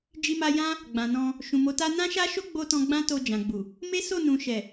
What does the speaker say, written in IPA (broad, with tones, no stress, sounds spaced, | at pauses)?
d͡ʒ i˧ m a˧ j ã˦ | ɡ͡b ã˨ n ɔ̃˧ | ʃ ũ˨ m o˨˦ t a˦ n ã˦ ʃ a˦ ʃ o˦ ɡ͡b o˧ t ɔ̃˧ ɡ͡b ã˦ t o˧ d͡ʒ ã˨ ɡ͡b u˨ | m e˦ s o˦˨ n ũ˨ ʃ ɛ˨